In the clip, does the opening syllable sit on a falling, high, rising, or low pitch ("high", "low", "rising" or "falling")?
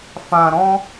low